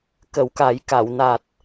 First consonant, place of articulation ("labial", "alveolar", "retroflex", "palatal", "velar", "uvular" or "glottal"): velar